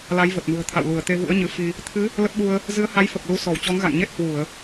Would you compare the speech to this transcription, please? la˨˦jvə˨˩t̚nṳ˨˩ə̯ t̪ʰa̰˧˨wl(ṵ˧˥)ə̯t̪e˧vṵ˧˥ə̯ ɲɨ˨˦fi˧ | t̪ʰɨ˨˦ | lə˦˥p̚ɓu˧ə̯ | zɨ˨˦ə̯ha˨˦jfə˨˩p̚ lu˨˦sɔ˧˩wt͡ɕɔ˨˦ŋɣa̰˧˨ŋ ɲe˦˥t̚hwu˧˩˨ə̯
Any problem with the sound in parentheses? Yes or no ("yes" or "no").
yes